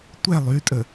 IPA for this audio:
tʷ ɛ lˠ y tʼ ə

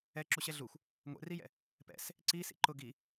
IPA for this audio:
ɛ ǁ u ɕ ɛ ɮ u xʷ | ŋʷ ɛ̰ r i j ɛ̰ | p ɛ̰ s | ǀ i s ḭ ǃ ʊ ɡ i

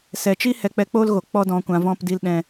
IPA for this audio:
s ɛ˨ t͡ʃ i˦ h ɛ˧ k͡p ɛ˧ k͡p oː˦ l ɣ o˨ k͡p ɔ˦ d ɔ̃˧ kʷ ã˧ v ɔ̃˧ p d i˧ l ɗ ɛ̃˧

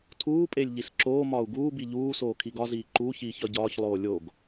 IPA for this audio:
tʰ uː pʼ e lʲ ʎ i s ǁ oː m ɒː u̯ ɡ uː b i ʎ uː s oː kʰ i ɡ ɒ z iː ǃ u ç iː ç ɒ ɟ ɒː ç lˠ oː lʲ o ɡ

